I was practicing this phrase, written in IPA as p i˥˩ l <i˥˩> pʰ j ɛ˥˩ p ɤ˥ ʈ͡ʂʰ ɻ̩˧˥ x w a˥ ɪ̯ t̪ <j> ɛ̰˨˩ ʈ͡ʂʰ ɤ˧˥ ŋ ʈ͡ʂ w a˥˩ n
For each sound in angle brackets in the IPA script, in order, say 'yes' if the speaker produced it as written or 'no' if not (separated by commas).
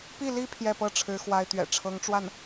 no, no